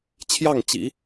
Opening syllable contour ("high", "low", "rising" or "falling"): falling